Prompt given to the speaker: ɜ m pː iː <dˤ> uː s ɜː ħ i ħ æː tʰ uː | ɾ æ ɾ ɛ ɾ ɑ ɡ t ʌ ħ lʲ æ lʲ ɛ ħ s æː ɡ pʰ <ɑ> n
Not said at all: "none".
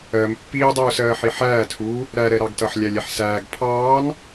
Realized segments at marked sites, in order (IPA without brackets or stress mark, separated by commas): dˤ, ɑː